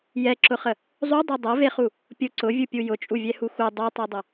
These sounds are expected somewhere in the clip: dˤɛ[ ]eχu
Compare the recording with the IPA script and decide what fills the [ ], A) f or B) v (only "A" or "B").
B